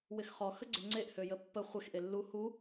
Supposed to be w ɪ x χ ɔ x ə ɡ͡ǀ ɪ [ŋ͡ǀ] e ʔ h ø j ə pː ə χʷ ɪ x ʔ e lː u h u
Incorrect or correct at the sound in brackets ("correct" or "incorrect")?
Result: correct